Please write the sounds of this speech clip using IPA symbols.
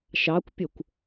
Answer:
ʃ ɑ kʷ pʲ ɵ kʷ

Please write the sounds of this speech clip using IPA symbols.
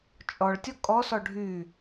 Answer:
t͡ʃʼ ɔ ɭ tʲ ɔ kʼ ɔ s ɔ ɖʱ y

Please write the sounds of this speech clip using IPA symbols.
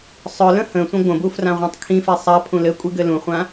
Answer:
sˤ œ l ə̃ h ə̃ sʷ ə̃ ɡʷ ə̃ b u f r ã ʁʷ ã tˤ kʰ ĩ f e sˤ a pʰ ũ l ɘ kʷʼ i ɡ ɘ l ũ χʷ ã

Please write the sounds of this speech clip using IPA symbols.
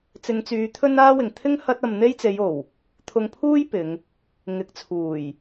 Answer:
t͡s ɪ˨˧ ŋ t͡s yː˨˧ t̪ʰ ɵ˥ n aː˥ w ɪ˨ ŋ t̪ʰ ɪ˥ ŋ h ɐ˥ t̚ ɐ˧ m n̪ e˥ j t͡s e˨˧ j o˨˩ w | t̪ʰ ʊ˧ ŋ pʰ uː˥ j p ɪ˨˧ ŋ | ŋ ɪ˨˥ k̚ t͡sʰ uː˨˩ j

